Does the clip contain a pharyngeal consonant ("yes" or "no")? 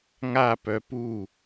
no